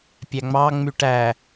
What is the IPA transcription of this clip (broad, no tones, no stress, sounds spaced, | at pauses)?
pʲ æ ŋ͡m ɑ ŋ͡m y ʈ æ